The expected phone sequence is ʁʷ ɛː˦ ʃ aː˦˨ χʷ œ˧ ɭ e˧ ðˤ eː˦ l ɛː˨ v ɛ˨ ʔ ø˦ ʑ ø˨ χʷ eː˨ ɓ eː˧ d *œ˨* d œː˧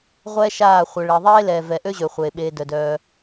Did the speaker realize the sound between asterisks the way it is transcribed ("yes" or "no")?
yes